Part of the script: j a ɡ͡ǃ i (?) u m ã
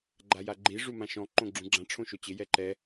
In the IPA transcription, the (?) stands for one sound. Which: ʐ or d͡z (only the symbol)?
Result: ʐ